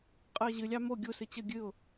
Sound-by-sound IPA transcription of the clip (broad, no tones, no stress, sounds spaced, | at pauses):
qʼ ɨ ə̯ ʑ ɨ lʲ ɑ m o ɡʲ u s ɨ t͡ɕ ə ɡʲ ɨ ʊ̯